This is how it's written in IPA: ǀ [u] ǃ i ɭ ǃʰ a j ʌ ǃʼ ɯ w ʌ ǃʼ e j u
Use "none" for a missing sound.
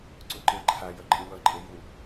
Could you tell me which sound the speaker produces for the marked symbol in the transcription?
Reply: u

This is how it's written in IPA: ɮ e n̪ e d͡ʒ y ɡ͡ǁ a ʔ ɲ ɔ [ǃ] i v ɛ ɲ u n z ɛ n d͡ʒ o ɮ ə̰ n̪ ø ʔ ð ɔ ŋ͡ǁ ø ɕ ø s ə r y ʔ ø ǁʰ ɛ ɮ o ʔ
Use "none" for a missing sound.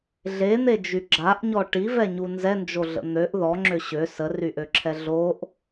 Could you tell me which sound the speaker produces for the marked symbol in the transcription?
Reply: ʈ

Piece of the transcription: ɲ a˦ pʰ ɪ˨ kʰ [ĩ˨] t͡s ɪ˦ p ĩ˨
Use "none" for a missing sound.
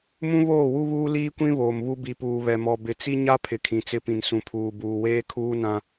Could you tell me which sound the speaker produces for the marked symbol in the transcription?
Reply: ĩ˨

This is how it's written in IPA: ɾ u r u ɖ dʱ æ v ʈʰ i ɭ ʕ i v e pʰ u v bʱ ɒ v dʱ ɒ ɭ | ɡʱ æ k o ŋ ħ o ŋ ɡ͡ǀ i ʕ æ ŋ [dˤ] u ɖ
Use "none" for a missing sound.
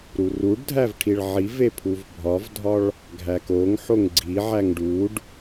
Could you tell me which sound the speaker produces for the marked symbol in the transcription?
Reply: ɖ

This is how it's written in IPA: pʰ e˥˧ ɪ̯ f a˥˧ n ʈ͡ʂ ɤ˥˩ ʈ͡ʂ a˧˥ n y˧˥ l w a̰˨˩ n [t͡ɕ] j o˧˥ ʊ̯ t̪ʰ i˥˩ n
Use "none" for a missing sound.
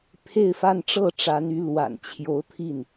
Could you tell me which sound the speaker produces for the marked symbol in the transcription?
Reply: t͡ɕʰ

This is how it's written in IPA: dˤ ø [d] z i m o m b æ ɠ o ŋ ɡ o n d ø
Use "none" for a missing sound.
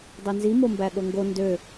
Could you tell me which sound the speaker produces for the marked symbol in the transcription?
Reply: n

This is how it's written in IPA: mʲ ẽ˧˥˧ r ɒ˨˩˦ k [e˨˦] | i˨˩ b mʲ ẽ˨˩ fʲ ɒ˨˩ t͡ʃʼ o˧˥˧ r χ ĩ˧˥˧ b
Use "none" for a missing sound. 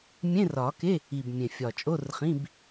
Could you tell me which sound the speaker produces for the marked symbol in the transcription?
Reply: e˧˥˧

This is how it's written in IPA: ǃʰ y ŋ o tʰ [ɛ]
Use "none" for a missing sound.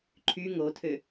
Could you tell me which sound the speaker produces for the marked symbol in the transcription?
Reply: ø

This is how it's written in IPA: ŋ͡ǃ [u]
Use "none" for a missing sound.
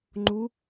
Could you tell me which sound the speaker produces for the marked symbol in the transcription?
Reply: u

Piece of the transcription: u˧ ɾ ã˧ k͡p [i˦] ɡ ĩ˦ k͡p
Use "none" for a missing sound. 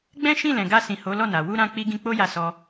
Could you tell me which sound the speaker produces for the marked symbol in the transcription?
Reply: i˦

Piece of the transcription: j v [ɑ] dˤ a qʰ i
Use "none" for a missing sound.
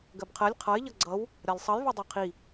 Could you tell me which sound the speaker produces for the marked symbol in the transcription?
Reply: ɑ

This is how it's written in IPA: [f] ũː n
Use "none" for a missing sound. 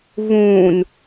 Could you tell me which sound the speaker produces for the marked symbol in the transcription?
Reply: v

